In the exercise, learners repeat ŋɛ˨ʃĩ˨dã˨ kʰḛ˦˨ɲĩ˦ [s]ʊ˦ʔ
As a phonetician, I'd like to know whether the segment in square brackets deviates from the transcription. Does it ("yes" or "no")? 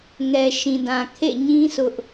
no